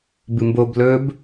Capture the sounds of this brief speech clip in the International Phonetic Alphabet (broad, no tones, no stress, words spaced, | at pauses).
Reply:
bɨmbob lɵb